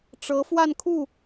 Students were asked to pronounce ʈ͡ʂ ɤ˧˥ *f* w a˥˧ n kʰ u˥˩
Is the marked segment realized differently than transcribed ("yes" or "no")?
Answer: no